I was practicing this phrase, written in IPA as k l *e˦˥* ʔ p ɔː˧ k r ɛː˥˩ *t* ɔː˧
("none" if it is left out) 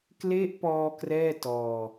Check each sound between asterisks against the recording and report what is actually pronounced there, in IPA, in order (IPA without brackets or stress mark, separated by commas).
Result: e˦˥, t